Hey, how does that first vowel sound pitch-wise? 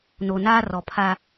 low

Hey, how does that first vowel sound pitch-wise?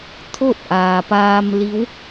falling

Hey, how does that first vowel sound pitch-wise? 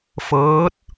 rising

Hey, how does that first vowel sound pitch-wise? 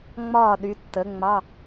falling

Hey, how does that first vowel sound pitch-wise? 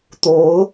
rising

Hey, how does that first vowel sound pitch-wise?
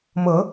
rising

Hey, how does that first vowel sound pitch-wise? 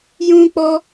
high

